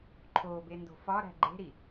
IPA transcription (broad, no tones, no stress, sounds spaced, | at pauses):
ǃʰ o b e n d o̤ f ɒ ɾ æ̤ ɡ͡ǃ e̤ ɾ i